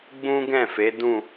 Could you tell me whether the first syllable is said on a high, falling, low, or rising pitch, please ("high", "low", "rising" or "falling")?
high